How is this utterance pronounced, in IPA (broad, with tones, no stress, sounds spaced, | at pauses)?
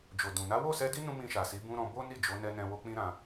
d͡ʒ o˨ d ũ˨ n a˨˦ w o˦˨ s ɛ˧ d i˦ n ũ˦ m ĩ˧ ʃ a˨ s i˨˦ b ũ˦ ɾ ɔ̃˦ b o˦ n i˦˨ d͡ʒ o˨˦ n ɛ˧ n ɛ̃˧ w o˧ k͡p ĩ˦ ɾ ã˧